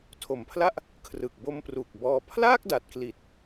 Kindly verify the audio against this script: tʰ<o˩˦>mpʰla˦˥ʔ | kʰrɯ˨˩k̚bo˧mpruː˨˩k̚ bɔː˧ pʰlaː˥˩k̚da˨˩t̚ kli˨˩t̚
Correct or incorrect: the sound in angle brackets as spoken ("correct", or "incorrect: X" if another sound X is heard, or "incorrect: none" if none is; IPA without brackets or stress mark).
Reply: correct